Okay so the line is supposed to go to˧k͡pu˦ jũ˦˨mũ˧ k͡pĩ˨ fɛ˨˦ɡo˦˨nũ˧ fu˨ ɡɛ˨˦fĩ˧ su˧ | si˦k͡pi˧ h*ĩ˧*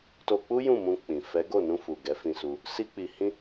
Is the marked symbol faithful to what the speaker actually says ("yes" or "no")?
no